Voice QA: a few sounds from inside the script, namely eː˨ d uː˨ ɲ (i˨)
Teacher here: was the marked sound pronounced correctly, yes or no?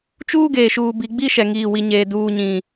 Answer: no